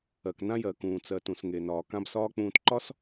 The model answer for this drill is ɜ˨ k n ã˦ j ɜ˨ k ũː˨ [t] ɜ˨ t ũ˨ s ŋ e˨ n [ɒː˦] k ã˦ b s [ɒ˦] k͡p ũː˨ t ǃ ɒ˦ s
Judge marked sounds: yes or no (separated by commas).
no, no, no